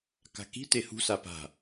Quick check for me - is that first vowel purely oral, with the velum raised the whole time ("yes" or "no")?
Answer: yes